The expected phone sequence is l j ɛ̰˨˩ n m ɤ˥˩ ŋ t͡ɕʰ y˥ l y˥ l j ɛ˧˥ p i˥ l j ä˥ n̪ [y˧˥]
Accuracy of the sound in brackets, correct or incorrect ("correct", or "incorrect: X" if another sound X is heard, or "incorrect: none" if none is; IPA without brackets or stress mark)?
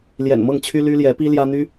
incorrect: y˥